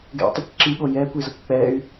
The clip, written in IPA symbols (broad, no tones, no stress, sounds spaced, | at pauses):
ɡ ɛ̰ tˤ ʌ kʷ ǁ i ɠ o j ɛ kʷ i z ʌ kʷ k͡p ɛ y̯